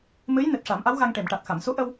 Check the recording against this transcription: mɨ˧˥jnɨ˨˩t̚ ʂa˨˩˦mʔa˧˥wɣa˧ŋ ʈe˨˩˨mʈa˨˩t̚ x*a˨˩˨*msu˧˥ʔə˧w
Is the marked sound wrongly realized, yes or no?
no